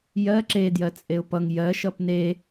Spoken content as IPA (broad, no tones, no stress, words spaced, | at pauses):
jɜ ǁe djɜt͡sʼeʊ̯pʌŋ jɜ ʃʌpne